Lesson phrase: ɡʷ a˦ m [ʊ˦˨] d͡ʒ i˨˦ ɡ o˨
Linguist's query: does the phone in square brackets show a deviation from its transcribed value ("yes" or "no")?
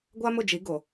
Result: no